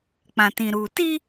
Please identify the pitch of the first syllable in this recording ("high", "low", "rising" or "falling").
low